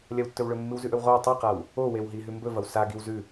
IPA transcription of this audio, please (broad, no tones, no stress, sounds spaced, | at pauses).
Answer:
lʲ ɐ w tː ɵ w ɭ ɵ mː ɨ w z ʉ ʔ ɵ w ʁ o w tˤ i q a w | o w e w ɦ i ɦ ʉ m b ɵ v ɐ w s a ɡ i w z ʉ